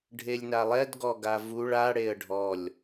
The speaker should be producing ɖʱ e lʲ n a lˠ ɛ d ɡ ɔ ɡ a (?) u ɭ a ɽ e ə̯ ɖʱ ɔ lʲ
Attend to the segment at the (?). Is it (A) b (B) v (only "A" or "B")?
B